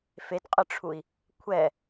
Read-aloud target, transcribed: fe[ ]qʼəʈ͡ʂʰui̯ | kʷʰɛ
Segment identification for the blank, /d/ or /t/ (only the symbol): t